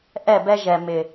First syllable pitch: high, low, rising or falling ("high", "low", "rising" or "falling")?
falling